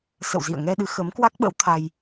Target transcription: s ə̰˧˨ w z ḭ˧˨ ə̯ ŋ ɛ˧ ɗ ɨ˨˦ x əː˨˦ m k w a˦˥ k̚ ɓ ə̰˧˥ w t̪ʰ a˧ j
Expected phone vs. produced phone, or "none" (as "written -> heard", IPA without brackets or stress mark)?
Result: none